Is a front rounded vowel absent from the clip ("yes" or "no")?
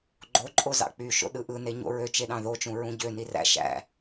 no